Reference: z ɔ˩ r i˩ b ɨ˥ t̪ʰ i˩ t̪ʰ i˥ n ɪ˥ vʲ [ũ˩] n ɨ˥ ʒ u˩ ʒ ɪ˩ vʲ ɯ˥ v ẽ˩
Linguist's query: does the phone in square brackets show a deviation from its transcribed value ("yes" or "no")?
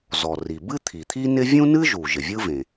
yes